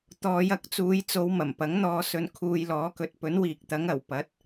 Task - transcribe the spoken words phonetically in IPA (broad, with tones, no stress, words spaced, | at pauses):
t̪ɔː˨˧jɐ˨˥k̚t͡suː˨˧jt͡so˨˧w mɐ˨˩mpɐ˨˥ŋn̪ɔː˧ sɵ˧nkʰuː˧jlɔː˨˥ kɵ˨t̚pɵ˨˥nwiː˨k̚t̪ɐ˨˥ŋ ɐ˨˩w pɐ˨˥t̚